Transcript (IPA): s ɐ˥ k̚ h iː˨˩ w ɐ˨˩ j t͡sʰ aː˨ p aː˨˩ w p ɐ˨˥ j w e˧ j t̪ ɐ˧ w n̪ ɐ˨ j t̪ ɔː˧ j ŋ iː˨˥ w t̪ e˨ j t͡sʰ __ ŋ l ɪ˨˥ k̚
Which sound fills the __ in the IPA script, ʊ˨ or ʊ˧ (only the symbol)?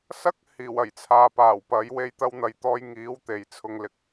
ʊ˧